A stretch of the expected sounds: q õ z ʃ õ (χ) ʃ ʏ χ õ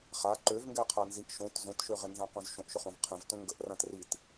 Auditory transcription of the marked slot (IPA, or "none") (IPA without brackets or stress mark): ʔ